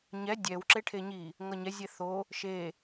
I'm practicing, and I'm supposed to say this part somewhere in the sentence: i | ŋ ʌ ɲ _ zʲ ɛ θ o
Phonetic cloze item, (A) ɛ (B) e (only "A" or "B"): A